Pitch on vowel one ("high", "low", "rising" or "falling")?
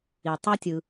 low